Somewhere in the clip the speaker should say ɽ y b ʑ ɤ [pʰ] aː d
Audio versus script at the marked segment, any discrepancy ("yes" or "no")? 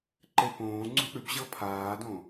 no